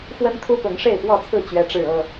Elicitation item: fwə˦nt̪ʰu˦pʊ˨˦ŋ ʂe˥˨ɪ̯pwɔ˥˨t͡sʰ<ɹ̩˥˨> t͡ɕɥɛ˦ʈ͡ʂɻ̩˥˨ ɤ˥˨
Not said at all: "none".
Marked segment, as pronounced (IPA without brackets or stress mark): ɹ̩˥˨